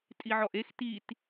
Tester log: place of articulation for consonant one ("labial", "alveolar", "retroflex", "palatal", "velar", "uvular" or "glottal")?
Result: alveolar